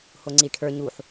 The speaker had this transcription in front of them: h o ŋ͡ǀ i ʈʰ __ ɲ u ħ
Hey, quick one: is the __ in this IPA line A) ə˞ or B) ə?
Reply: A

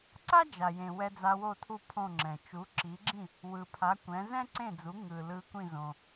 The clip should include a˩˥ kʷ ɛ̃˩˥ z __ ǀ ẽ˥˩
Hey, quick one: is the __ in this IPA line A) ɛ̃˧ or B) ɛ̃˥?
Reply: B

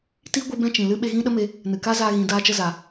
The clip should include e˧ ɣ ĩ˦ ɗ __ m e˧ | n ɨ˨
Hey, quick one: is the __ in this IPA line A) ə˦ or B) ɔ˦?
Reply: A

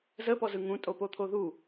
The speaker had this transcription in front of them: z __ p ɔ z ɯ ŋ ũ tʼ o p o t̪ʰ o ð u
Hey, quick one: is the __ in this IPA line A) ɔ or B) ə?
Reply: B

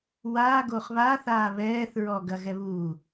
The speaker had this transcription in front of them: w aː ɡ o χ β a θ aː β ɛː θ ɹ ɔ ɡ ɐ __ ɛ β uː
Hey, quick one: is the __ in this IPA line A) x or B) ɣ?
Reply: B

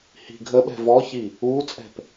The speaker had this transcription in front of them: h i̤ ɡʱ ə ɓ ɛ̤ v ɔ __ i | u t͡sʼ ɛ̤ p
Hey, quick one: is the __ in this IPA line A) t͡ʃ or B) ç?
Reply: B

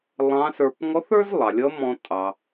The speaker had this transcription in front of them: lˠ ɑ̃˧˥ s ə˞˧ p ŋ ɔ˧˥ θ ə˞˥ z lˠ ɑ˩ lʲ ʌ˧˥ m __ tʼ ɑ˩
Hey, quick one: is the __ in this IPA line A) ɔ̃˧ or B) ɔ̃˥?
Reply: A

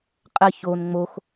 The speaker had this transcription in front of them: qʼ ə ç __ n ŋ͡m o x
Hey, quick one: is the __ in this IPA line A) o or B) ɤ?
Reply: A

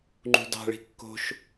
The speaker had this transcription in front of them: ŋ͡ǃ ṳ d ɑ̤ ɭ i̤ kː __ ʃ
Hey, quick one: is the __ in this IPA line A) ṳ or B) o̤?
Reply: B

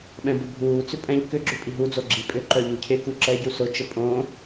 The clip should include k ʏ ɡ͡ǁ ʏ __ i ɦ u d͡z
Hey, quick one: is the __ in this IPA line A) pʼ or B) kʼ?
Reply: A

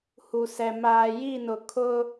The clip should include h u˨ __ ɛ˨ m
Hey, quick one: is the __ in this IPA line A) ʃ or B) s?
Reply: B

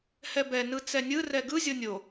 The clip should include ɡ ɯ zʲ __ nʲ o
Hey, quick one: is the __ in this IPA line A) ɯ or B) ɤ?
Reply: B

